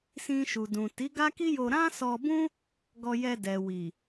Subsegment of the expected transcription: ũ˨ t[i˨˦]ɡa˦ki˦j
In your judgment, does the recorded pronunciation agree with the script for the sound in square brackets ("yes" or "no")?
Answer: yes